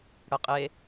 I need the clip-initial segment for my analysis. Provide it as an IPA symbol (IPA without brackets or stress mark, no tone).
ɽ